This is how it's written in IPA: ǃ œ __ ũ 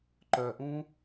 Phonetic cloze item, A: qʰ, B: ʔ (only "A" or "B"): B